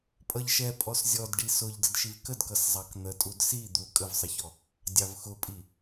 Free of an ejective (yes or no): no